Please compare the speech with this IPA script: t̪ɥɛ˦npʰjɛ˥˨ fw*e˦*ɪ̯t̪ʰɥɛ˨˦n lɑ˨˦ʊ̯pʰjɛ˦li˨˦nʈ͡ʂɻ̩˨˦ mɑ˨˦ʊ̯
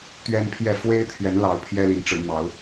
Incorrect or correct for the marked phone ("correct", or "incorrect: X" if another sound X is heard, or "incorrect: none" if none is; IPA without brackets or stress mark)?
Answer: correct